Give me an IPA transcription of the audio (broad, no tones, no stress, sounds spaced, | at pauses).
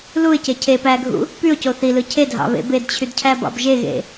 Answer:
l u ɪ̯ c e cʰ e p æ ɡʱ ṵ | p y ʊ̯ c o θ i l ɯ cʰ e dʱ ɑ̰ β ḛ b e d t͡ɕʰ y d cʰ æ b ɑ̰ b ʒ e ɣ ḛ